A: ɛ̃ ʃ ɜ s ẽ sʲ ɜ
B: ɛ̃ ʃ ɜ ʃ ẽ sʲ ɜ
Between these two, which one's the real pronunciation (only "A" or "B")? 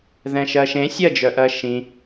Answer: B